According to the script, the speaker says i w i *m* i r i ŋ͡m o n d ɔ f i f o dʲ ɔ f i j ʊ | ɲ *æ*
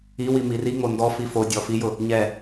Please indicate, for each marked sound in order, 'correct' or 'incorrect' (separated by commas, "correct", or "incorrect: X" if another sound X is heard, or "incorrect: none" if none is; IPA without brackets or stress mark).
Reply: correct, incorrect: ɛ